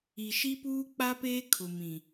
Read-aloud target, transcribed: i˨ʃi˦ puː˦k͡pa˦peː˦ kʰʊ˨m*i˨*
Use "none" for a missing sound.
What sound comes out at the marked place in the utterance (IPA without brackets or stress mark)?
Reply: ĩ˨